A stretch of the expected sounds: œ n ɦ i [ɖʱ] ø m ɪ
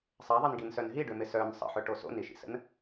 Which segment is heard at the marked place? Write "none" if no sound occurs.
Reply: ɖ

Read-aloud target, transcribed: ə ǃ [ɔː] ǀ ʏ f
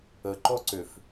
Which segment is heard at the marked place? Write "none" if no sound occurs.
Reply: ɔ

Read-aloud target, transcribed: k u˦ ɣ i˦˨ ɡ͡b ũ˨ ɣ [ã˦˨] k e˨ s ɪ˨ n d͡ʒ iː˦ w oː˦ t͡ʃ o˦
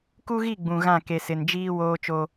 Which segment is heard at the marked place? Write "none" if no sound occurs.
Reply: ã˦˨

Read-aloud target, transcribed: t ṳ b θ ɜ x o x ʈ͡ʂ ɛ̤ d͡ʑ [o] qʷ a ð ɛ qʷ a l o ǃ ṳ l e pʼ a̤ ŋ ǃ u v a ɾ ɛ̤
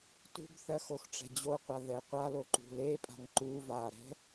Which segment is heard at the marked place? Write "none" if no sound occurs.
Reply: o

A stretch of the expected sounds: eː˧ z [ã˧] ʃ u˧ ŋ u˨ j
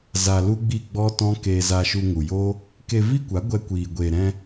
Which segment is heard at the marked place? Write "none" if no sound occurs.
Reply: a˧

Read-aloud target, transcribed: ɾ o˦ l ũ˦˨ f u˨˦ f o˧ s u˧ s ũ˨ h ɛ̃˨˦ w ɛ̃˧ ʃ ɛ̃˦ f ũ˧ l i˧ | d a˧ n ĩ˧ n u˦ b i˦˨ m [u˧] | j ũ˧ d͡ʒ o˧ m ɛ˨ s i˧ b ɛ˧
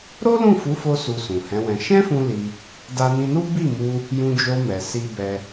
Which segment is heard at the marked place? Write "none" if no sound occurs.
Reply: u˧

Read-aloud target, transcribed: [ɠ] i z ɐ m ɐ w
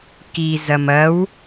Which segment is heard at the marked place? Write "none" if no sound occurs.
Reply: k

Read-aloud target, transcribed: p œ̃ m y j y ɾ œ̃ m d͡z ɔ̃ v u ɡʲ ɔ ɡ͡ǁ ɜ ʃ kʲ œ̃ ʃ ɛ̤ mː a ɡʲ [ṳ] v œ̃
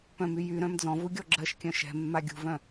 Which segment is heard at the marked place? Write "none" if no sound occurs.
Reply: ṳ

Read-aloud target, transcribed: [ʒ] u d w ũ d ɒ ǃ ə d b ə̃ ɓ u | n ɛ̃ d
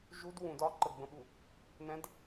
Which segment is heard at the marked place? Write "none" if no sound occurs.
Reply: ʒ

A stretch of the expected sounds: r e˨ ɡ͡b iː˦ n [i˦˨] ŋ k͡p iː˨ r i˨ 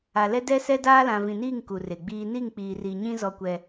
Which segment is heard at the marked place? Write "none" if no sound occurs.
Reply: i˦˨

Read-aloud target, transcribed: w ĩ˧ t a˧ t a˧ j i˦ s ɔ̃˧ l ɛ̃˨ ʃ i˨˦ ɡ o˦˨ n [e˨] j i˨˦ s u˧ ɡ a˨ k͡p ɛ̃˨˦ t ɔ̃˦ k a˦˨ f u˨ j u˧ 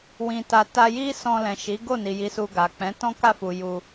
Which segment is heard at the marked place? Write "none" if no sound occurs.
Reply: i˨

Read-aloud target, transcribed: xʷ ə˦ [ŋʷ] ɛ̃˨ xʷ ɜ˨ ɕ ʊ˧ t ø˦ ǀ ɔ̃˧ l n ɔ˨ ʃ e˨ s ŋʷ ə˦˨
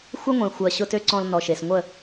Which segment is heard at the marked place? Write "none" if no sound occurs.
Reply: ŋʷ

